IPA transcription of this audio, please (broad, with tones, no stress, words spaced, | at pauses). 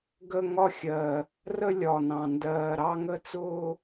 ɡə˥˧ ŋɒ˥˧xʲɜ˨˩ | rə˥˧lʲɒ˨˩nɑ̃˨˩ ndɜː˨˩ɾɑ˥˧ ŋə˥˧t͡sʊː˥˧